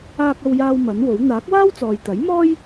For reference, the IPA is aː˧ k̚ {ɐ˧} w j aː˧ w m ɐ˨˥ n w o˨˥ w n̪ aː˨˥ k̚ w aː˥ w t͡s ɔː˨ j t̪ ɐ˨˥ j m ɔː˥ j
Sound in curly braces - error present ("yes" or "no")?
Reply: no